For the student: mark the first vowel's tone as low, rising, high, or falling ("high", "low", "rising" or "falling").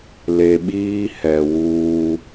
low